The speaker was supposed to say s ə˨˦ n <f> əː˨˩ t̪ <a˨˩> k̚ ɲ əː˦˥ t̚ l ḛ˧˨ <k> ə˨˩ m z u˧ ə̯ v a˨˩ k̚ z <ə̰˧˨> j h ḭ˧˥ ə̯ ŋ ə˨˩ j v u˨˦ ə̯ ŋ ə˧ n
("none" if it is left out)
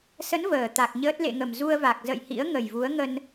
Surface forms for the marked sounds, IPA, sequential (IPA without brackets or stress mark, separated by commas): v, a˨˩, ŋ, ə̰˧˨